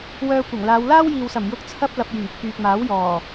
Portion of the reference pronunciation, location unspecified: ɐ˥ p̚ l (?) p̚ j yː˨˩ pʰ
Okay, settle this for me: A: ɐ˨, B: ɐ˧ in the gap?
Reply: A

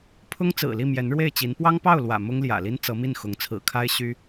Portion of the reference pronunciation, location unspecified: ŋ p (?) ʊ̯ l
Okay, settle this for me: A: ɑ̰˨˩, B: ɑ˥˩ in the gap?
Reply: B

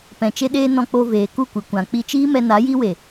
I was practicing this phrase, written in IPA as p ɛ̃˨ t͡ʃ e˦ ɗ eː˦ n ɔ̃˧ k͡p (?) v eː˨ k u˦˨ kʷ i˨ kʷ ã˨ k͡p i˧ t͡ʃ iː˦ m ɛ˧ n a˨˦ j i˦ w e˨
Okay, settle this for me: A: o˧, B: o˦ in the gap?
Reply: A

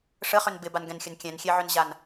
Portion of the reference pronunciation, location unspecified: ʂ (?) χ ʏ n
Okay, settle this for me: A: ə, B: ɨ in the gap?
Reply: A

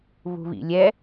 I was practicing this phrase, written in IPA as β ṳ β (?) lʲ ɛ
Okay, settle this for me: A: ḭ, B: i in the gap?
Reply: A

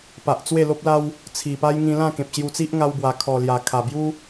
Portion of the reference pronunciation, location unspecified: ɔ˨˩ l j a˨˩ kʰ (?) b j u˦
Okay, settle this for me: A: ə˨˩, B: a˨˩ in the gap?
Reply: B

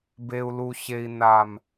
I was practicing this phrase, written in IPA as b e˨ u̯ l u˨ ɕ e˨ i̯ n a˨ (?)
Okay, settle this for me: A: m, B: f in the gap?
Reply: A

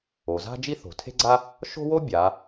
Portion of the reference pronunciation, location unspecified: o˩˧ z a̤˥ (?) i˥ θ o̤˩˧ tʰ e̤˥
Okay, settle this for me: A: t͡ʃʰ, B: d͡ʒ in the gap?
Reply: B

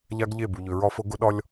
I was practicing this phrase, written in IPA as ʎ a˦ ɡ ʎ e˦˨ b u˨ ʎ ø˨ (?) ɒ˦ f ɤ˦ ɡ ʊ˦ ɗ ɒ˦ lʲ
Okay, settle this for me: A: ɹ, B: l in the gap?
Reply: A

